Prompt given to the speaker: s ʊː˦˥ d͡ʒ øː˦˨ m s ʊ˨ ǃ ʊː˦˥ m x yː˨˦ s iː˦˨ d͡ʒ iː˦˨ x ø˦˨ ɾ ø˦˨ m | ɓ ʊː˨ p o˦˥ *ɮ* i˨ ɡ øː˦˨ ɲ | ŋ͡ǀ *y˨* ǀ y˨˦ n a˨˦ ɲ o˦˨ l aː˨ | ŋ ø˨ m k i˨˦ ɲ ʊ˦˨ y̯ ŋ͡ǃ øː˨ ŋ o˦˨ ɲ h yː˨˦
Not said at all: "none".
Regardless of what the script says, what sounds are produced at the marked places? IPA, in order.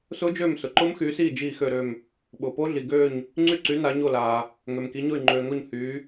ɮ, y˦˨

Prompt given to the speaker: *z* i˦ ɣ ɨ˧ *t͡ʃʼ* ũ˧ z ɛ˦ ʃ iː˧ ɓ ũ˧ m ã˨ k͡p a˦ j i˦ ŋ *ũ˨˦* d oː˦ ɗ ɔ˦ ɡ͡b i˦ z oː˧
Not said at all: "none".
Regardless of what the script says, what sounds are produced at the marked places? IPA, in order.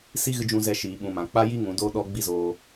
s, d͡ʒ, ũ˨˦

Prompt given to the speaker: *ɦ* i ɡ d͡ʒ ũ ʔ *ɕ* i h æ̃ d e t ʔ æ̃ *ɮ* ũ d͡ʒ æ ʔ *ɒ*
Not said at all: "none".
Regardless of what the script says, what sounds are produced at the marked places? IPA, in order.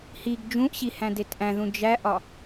h, ɕ, ð, ɒ

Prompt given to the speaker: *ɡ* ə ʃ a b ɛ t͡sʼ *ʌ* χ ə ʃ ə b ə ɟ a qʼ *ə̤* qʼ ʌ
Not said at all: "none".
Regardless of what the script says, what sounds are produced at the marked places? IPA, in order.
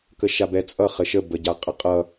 k, ʌ, ə

